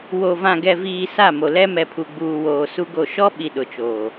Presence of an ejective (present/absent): absent